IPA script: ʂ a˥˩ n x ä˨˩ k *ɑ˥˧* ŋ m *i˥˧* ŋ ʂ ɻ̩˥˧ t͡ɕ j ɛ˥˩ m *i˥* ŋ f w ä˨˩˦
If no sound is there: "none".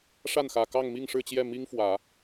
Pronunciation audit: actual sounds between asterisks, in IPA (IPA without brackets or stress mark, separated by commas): ɑ˥˧, i˥˧, i˥